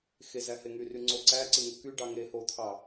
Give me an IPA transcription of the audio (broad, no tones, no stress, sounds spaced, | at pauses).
x e z æ h e ŋ y r y ŋ͡ǀ o ǀ æ ǀ ɯ ŋ o k y ɖ ɑ ŋ e h o t̪ʰ ɑ